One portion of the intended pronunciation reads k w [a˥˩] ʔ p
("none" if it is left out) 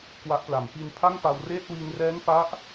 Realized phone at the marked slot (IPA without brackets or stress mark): a˦˥